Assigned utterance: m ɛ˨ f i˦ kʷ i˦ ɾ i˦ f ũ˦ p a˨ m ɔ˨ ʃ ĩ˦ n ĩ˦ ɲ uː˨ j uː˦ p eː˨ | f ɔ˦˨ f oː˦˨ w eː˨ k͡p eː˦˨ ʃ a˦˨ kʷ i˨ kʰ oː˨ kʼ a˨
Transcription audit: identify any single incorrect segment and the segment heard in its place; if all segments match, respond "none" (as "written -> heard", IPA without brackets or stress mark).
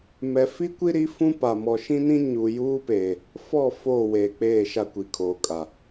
none